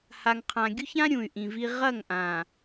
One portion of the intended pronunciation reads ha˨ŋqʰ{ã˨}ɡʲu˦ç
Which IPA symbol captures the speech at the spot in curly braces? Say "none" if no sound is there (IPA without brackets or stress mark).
ã˨